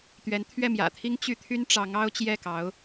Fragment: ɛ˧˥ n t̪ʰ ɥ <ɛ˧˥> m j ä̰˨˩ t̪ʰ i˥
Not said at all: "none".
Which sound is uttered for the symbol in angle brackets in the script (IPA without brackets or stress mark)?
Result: ɛ˥˩